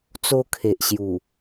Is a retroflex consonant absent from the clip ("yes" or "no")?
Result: yes